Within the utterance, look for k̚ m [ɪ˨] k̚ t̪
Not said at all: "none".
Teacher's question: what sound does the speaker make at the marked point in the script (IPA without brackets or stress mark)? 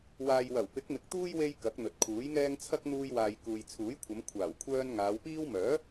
ɪ˨